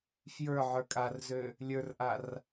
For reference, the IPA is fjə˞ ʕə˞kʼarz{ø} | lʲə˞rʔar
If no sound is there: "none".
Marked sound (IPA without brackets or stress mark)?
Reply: ø